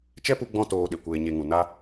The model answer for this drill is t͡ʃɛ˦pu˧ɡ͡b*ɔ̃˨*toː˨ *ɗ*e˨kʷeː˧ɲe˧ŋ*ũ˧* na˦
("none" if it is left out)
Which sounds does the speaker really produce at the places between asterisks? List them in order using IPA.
ɔ̃˧, ɗ, ũ˨

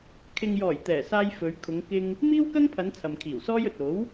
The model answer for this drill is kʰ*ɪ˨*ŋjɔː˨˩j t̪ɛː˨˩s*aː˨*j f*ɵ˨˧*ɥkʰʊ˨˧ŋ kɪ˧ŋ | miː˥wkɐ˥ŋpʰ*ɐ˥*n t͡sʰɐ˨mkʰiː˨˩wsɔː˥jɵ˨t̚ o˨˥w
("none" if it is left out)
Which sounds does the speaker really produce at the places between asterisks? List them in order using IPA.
ɪ˨, aː˧, ɵ˨˧, ɐ˨˧

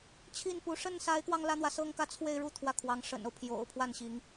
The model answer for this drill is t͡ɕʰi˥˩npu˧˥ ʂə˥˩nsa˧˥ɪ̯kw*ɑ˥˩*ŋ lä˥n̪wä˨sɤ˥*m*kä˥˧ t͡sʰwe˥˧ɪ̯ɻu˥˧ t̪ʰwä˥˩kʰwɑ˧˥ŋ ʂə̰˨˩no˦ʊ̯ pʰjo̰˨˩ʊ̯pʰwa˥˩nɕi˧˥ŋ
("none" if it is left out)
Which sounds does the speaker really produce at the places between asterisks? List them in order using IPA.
ɑ˧, ŋ

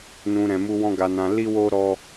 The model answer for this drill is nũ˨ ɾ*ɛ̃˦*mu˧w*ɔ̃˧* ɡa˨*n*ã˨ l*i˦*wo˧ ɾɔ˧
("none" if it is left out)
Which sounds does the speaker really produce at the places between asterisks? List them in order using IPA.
ɛ̃˨, ɔ̃˧, n, i˧

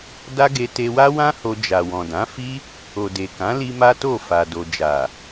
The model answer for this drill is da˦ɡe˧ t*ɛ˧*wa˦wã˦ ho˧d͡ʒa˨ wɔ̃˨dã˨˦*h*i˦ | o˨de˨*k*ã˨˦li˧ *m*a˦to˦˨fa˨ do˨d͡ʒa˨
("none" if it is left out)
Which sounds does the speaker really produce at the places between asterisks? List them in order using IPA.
e˧, f, k, m

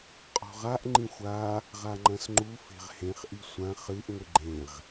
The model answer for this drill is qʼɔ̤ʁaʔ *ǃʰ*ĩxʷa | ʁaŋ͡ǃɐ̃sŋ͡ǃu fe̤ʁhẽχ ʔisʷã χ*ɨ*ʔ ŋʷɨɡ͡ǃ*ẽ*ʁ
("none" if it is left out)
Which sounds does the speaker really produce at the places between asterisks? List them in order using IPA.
ŋ͡ǃ, ɨ, ẽ

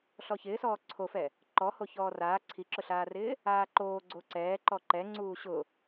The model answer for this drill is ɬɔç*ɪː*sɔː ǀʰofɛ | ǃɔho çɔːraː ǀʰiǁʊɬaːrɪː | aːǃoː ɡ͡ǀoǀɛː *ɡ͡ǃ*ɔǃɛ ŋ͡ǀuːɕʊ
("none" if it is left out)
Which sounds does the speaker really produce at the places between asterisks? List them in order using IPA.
ɪː, ǃ

